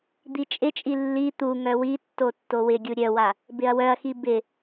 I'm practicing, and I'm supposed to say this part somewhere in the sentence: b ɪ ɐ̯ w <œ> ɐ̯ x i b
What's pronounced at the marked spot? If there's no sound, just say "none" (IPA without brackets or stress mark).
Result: œ